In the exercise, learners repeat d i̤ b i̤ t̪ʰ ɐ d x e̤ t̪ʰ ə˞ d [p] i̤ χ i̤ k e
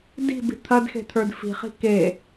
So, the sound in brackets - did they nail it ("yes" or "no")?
no